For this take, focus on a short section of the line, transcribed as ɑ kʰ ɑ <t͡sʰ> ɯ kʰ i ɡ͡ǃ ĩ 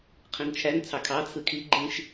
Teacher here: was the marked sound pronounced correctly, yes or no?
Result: yes